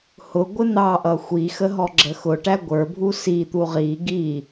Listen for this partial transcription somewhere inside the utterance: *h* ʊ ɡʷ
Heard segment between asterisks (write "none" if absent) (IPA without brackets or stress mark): h